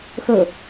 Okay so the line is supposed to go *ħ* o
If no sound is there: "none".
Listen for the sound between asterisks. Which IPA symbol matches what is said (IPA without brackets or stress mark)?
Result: x